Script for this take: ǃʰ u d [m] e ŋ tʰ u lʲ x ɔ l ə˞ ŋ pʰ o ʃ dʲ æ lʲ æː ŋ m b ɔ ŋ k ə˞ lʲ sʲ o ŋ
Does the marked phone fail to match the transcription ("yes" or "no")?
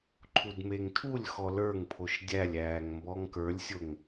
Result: no